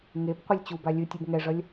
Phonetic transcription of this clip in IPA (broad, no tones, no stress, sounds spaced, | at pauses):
ŋ e b qʷ ɯ lʲ t͡ɕ u b a lʲ ɯ tʲ ɯ b ŋ ɛ ʐ ʌ lʲ